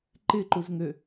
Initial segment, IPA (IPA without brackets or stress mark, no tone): ǃ